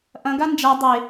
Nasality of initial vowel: nasal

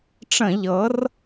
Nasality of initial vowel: nasal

